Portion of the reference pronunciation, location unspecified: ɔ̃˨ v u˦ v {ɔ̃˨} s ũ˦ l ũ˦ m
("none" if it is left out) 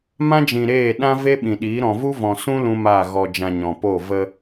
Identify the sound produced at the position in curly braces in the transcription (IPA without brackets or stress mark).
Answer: ɔ̃˨